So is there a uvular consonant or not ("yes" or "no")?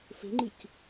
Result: no